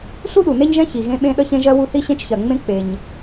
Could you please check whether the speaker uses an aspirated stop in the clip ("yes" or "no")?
no